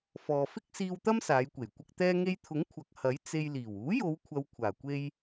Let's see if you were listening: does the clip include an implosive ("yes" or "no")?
no